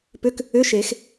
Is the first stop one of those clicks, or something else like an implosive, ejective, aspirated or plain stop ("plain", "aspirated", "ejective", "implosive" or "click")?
plain